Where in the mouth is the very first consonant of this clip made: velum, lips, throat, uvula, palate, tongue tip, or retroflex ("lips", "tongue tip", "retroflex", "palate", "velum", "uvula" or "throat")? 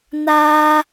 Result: tongue tip